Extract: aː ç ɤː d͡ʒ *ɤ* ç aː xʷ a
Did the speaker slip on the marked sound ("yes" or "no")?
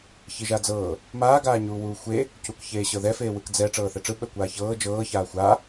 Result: yes